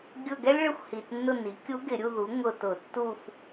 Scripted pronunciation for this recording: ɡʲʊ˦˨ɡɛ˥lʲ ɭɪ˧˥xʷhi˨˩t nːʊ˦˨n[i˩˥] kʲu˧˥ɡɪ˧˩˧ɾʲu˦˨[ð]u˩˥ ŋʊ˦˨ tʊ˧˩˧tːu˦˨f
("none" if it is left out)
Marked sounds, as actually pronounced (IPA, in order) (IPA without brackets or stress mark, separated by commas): i˩˥, ð